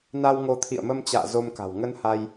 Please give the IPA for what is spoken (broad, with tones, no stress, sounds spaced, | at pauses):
n a˧ w ŋ o˧ t̪ʰ ḭ˧˨ ə̯ m ə˧ m t͡ɕ a̰ː˧˨ z o˧ m k a̤˨˩ w ŋ ə˧ n h a˧ j